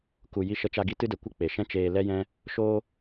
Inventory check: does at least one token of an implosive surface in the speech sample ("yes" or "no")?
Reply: no